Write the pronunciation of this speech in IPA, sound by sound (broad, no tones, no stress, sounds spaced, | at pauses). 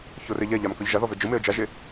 ç o r e ʎ ɛ ʎ a m k ɤ ʎ ʒ a ð ɔ v ɛ d͡ʒ ɯ m e ə̯ d͡ʒ a ʒ e